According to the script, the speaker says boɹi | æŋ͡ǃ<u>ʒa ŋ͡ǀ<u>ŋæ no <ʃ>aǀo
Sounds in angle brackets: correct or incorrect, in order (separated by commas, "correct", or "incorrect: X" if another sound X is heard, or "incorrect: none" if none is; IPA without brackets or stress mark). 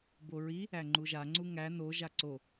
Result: correct, correct, incorrect: ʒ